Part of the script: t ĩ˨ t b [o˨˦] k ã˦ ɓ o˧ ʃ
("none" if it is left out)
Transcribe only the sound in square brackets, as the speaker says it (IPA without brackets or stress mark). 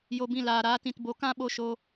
o˨˦